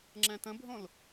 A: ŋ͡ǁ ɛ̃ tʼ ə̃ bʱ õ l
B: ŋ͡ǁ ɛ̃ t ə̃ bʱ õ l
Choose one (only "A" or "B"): B